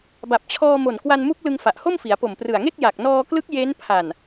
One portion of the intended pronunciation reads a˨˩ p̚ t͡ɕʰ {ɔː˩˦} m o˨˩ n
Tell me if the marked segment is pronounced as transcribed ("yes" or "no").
no